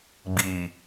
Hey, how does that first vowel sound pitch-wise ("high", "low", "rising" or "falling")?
low